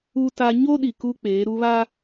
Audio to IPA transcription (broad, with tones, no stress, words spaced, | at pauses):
u˦ta˦ ɲo˦ɗi˨ ku˦ k͡peː˨˦ɾu˦βa˦